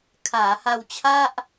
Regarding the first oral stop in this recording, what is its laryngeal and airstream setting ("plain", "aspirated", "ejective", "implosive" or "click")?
aspirated